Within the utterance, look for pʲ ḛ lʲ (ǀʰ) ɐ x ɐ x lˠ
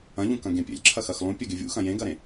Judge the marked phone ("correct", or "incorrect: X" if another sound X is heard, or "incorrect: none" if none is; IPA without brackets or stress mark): incorrect: ǁʰ